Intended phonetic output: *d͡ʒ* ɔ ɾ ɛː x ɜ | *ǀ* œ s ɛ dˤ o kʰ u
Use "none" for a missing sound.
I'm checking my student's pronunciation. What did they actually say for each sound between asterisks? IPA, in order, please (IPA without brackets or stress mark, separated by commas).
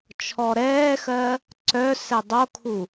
t͡ʃʰ, ǀ